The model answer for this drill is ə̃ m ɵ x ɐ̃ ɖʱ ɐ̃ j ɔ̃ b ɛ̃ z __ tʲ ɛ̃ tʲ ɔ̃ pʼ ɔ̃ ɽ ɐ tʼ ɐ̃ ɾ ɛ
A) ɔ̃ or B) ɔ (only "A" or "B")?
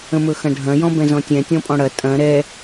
A